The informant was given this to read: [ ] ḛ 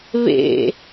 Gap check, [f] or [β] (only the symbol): β